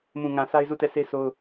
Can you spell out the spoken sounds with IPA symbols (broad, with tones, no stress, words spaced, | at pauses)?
mũ˨ŋã˨ sʰa˦ɪ̯zu˦˨tɛ˦˨se˦ sʰo˦ʊ̯